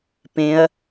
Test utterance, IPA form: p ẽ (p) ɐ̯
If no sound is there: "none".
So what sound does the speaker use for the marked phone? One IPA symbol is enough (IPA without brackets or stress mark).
none